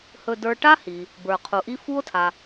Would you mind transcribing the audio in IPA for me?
h ɵ˧ d ə˞˧ ʈ a˥ h i˩ | b ə˞˩ qʰ u˩ ʔ i˥ f u˥ o̯ tʰ a˩

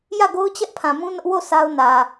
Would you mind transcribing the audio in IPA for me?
j ä˦˨ ɡ o˦ ʊ̯ t͡ɕ ɛ˦ ʔ pʰ ã˨ m ũ˦ n ʊ˦ ʔ w o˦˨ sʰ a˦ ʊ̯ n ä˨

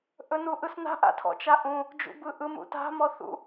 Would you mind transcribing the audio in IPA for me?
ʔ ɵ n u ʔ ɯ s n a̤ ʔ a̰ tʰ ɔ̰ t͡ʃ a ʔ ũ | d͡ʒ ṵ b ɯ ʔ ɯ m ṵ t a̤ m ɔ θ ṵ

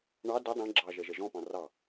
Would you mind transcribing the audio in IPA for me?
ɳ ɑ d ɪ dˤ ɛ̃ ɡ͡ǁ ɑ ʒ ɛ ʒ ɛ ʒ ɔ̃ p ɑ̃ r ɑ

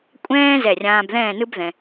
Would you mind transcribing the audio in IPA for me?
kʷʼ ɛ̃ː˥ z ɛ˧˩ rʲ ãː˧ b ð ɛ̃ː˥˧ n ɯ˥ b ð ɛ̃˧

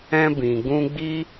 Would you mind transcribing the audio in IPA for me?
ɛ̃˧ b ĩ˨ ɡ ũ˧ ɡ͡b i˦

